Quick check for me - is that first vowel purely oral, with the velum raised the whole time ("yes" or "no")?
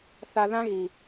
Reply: yes